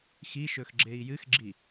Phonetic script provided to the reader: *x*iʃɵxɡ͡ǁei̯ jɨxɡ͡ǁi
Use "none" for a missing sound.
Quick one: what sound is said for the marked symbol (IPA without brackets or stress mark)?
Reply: x